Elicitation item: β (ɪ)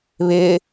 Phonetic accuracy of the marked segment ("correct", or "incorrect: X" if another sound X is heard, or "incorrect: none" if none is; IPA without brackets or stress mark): correct